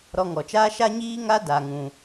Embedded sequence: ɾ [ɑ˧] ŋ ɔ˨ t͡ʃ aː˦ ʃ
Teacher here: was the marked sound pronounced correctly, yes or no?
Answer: no